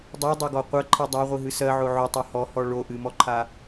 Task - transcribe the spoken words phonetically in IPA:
dˤ ɜ dˤ o ɡ ɔ qʷ ɜ ǃʰ i dˤ a ʁʷ i ɦ ɨ s ɜ ʕ o ʕ o tˤ ɜ h ɔ h ɔ ɭ o ʔ ɨ m ɔ ǃʰ a

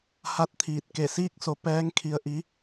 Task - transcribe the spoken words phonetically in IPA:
h a˧˥ t̚ t̪ʰ iː˧˩ t̚ k e˧˩ s iː˥˨ k̚ s o˧ p ɛː˧˥ ŋ kʰ i˧ ə̯ ʔ i˧˥

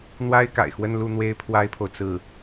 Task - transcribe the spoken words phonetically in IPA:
n̪ w a˥ ɪ̯ k a̰˨˩ ɪ̯ x w ə˥˧ n l u˥˩ n̪ w e˥ ɪ̯ pʰ w a˥ ɪ̯ pʰ o˨ ʊ̯ t͡s ɹ̩˥˩

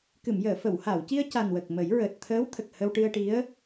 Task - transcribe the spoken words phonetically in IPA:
k ɨ˨˩˨ m j əː˨˩˨ f ə˨˩˨ w h a˨˩˨ w c i˧ ə̯ c a˨˩ n w ə˨˩ k̚ m ə˨˩˦ j ɹ əː˨˩ t̚ t̪ʰ əː˧˥ w t̪ʰ ə˨˩ k̚ h ə˧ w ʈ ɨ˧ ə̯ ʈ i˧˥ ə̯

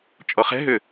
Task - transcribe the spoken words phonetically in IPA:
t͡ʃʼ ɔ χ ɛ̤ ɦ ʏ

